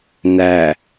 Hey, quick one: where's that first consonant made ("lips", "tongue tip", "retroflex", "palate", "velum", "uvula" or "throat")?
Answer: tongue tip